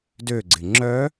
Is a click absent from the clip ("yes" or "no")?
no